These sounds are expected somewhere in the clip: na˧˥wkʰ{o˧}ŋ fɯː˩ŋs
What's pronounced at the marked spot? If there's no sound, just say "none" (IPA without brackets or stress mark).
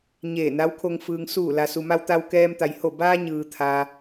o˧